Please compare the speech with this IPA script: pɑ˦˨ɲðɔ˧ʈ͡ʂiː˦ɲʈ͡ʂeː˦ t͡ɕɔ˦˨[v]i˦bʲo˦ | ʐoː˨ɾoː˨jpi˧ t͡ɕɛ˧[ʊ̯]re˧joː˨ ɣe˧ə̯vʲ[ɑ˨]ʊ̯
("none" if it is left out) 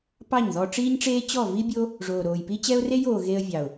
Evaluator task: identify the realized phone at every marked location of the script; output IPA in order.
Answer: v, ʊ̯, ɑ˨

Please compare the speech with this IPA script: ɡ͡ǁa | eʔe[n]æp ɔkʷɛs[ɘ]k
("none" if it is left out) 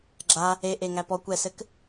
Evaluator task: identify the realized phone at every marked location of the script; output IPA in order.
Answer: ŋ, ɘ

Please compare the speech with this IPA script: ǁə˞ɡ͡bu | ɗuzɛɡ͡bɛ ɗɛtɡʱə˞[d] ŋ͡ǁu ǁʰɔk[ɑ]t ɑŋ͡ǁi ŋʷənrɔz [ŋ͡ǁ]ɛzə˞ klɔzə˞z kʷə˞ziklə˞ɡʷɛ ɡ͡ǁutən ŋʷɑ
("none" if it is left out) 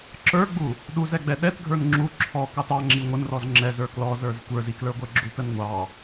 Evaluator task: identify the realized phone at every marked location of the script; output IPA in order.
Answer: n, ɑ, ŋ͡ǁ

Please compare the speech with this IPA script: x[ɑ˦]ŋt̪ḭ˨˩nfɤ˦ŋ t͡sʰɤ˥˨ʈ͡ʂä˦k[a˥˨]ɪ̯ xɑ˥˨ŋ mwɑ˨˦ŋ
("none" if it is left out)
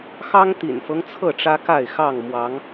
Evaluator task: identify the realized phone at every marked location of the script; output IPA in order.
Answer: ɑ˦, a˥˨

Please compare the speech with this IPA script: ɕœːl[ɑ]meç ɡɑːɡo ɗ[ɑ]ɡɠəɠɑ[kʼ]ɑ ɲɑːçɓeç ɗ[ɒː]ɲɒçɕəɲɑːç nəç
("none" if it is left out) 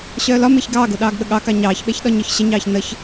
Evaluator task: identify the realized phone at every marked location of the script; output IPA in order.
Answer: ɒ, ɑː, k, ɒ

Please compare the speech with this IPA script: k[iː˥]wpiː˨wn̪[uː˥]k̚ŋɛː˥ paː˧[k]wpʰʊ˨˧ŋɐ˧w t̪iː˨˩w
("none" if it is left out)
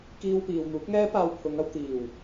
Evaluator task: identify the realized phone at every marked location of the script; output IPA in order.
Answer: iː˧, uː˨˥, none

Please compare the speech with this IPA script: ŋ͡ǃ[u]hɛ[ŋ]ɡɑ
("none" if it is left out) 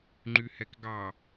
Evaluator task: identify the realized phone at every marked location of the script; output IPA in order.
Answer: y, k

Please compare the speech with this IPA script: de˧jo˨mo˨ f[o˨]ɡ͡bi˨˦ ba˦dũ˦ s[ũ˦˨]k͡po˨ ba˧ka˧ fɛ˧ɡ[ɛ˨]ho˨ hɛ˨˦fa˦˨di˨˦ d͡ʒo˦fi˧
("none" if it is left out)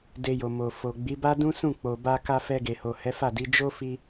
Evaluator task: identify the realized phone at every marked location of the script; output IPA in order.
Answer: o˨, ũ˦˨, e˨

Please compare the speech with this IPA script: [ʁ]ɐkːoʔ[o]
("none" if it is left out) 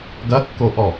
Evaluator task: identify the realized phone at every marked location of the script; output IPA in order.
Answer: ɡ, ɔ

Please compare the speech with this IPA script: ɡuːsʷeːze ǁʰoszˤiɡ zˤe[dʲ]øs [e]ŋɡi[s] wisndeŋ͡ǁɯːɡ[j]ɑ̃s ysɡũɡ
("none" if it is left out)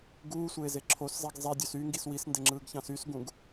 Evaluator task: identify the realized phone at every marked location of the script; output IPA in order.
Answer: dʲ, y, s, ç

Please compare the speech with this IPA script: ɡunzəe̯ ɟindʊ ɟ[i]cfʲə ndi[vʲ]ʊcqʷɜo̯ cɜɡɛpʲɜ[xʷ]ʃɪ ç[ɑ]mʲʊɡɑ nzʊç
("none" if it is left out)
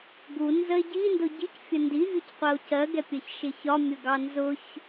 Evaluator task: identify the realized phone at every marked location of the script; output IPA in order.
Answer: i, vʲ, ç, ɒ

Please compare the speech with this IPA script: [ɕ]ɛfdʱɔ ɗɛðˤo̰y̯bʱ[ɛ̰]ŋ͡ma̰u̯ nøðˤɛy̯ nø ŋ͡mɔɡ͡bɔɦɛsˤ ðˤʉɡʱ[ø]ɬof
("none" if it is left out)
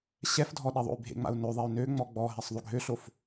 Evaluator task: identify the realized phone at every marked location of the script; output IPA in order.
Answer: ɕ, ḛ, ø

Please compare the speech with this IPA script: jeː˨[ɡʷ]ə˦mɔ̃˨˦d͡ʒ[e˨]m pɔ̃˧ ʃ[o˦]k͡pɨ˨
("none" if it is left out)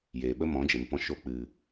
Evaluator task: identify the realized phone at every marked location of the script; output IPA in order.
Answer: ɓ, e˨, o˧

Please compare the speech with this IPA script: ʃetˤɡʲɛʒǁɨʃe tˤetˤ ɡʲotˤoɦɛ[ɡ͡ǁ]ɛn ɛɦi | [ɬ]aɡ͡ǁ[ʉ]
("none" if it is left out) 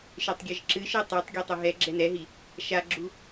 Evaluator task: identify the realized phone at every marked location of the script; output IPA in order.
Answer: ɡ͡ǁ, ʃ, u

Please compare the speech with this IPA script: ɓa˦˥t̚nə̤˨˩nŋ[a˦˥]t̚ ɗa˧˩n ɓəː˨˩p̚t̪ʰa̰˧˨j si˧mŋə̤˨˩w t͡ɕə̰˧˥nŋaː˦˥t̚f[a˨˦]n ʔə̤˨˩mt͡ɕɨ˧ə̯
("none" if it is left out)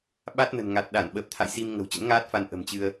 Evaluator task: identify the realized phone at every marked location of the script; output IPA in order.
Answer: a˨˩, a˧

